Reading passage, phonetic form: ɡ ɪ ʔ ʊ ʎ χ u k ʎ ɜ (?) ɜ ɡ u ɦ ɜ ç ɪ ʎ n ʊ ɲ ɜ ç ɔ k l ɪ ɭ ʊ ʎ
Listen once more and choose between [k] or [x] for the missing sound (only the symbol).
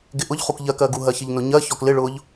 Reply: k